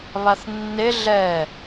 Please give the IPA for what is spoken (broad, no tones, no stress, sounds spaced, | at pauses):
β a θ nː e ɮ ɛ